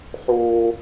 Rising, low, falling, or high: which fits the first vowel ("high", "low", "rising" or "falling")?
high